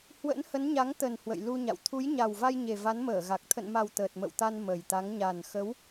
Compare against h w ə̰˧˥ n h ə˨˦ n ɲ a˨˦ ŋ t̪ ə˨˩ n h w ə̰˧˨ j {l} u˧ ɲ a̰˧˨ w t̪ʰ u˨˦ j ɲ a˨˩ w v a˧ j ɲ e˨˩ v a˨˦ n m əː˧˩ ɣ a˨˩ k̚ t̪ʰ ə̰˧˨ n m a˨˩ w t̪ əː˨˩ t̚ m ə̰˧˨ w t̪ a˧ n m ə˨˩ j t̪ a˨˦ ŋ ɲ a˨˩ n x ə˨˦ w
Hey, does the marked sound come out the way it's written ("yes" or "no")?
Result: yes